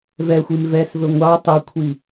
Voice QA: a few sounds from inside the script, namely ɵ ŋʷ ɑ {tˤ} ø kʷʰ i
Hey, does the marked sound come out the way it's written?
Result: yes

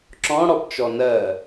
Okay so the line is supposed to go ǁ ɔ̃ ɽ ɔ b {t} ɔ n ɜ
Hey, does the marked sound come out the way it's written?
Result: no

